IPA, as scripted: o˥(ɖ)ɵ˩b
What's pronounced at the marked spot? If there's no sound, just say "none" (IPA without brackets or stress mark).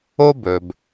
b